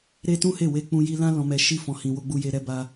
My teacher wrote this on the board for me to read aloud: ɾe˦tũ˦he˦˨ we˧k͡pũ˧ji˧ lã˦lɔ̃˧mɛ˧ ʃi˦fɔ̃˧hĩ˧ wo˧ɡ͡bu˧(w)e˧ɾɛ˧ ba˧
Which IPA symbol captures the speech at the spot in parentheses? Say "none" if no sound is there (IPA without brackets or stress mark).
j